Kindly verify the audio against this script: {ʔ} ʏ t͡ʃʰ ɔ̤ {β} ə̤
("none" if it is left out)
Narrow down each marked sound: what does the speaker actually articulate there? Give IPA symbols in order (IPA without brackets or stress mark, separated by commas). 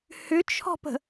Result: h, p